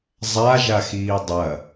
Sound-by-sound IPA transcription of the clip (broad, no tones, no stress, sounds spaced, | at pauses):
zˤ a ʒ a x iː dˤ ɐ